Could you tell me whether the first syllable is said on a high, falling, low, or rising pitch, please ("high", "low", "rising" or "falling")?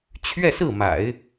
falling